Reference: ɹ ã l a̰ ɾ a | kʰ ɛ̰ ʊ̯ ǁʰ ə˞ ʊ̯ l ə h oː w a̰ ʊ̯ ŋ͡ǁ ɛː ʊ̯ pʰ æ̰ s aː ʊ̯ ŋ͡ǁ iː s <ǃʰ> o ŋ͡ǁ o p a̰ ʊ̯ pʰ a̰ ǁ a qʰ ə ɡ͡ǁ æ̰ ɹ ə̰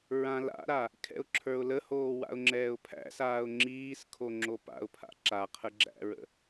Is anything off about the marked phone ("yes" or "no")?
yes